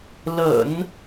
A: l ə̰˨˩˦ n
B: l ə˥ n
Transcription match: A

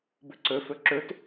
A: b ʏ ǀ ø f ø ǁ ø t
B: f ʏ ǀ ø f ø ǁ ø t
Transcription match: A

